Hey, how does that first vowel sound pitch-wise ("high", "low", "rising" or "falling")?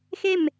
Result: falling